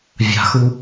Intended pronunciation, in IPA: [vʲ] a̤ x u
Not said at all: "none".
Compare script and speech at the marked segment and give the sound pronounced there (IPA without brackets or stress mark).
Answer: vʲ